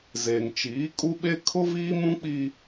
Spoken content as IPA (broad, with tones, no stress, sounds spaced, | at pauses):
z e˨ ŋ t͡ʃ iː˨˦ kʼ u˦ ɓ e˦ kʰ ʊ˦ v iː˦ m ũ˦ k͡p i˦